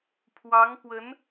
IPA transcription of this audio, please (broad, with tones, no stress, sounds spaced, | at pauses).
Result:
pʰ w ɑ˧˥ ŋ p w ə˧˥ n